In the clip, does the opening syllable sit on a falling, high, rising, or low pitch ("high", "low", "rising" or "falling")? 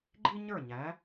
high